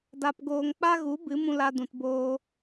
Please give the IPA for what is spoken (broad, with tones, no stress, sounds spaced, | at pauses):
d a˧ p ɡ oː˧ ŋ k͡p a˦ ɣ u˨˦ b ɨ˨˦ m ũ˧ l a˧ d ũ˨ t b oː˧